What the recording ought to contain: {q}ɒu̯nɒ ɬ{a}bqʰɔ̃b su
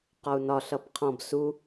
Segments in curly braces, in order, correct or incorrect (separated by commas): correct, incorrect